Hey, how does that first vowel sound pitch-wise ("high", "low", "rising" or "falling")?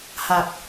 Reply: low